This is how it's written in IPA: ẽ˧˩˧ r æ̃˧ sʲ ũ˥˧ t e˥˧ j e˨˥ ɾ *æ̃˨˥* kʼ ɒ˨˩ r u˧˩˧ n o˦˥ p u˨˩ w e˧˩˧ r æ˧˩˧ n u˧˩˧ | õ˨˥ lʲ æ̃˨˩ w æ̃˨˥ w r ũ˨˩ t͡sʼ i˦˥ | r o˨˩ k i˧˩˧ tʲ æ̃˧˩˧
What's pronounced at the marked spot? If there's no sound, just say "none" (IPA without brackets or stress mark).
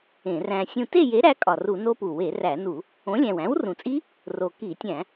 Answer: æ˨˥